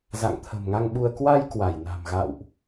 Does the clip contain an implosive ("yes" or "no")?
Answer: yes